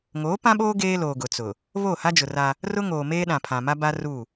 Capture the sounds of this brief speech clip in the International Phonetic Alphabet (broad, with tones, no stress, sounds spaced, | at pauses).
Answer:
ŋ oː˨˦ p ã˦ ɓ oː˦ ɡ eː˦ l oː˨ ɡ ʊ˨ t͡s ʊ˨ | β oː˦˨ h a˦ d͡ʒ ʊ˨ r a˦ | r ʊ˦ ŋ oː˨ m eː˦ ɗ ã˨ pʰ ã˨ m a˦ b a˦ r u˦˨